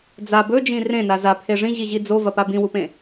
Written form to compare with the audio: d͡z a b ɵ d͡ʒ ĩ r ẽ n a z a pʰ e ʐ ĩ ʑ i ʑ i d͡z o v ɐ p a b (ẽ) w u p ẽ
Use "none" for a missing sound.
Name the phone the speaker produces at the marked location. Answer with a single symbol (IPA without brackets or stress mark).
ĩ